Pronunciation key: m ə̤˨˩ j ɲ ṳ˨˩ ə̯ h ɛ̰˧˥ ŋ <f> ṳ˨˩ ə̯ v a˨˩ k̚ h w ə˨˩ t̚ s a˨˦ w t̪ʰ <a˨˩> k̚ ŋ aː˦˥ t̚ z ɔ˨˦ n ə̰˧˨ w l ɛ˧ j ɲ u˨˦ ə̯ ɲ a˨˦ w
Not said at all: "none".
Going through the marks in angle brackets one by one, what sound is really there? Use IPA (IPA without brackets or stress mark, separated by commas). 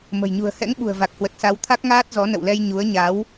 ɓ, a˦˥